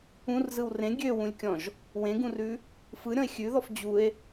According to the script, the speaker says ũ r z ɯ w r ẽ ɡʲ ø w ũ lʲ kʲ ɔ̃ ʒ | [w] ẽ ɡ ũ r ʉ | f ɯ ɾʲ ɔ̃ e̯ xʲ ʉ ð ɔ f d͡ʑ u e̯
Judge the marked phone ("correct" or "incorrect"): correct